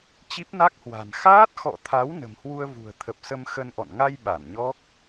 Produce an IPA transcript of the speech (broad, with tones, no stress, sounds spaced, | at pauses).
t͡ɕ i˦˥ p̚ n a˦˥ k̚ h w a̤˨˩ n x aː˦˥ t̚ x ɔ̰˧˨ t̪ʰ a˨˦ w n ə̤˨˩ m h w u˧ ə̯ v ṳ˨˩ ə̯ t̪ʰ ə˨˩ p̚ s ə˧ m x ə˧ n ʔ ɔ̰˧˨ n ŋ a˧ j ɓ a˧˩ n ɲ ɔ˦˥ k̚